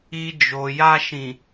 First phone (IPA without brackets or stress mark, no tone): i